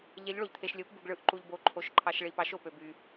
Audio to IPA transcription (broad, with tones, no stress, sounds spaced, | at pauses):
ʎ e˧˥ ʎ ɭ o˧ ʎ t̪ʰ e˧ ʃ lʲ o˧˥ p b u˧ ɡ ɭ ɯ˧˥ ʔ ǃ u˧ ʎ b o˧˥ ǃʰ o˧˥ ʃ ǃʰ ɑ˧ ʃ ɭ i˧ p ɑ˧˥ ʃ o˧ p ø˧ b y˧